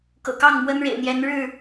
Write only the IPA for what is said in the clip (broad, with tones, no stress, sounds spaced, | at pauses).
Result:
k ɤ̰˨˩ k ɑ˥˨ ŋ m w ə˦ n ɻ ḛ˨˩ ɪ̯ n̪ j ɛ˨˦ n ɻ ɻ̩˥˨